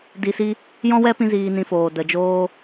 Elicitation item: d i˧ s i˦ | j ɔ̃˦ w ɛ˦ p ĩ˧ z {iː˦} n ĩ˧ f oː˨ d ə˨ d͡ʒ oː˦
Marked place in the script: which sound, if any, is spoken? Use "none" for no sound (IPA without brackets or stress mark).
iː˧